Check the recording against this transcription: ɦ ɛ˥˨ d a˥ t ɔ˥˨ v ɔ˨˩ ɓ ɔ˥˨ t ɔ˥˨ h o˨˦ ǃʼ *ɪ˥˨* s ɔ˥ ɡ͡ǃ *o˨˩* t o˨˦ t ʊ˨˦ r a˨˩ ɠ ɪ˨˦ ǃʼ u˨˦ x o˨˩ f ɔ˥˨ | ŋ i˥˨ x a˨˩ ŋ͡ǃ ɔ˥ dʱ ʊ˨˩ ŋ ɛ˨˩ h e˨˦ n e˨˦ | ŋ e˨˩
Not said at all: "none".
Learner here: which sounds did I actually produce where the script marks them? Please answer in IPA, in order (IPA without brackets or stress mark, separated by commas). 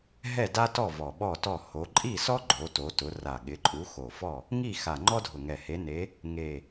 i˥˨, o˨˦